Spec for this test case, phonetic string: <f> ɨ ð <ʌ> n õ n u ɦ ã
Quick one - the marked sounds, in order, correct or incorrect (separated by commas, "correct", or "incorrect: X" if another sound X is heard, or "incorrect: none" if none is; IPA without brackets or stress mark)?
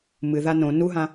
incorrect: m, incorrect: a